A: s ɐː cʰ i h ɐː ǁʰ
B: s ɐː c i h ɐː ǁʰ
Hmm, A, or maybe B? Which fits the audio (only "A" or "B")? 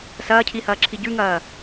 A